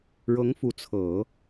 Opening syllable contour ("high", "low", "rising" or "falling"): rising